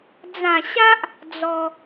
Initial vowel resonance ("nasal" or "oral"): nasal